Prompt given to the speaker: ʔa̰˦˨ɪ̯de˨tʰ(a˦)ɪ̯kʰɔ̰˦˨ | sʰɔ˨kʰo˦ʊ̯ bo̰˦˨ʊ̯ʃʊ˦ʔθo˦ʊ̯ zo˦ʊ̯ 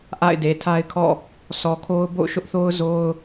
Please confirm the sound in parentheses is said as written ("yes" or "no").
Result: yes